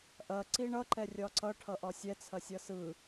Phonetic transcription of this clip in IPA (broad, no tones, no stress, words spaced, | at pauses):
ʔɐ ǀiɳʌ ǃɛrʲɒǀʌ ʈʰʌʔɒsʲɛ t͡sʰɐsʲʌsɯ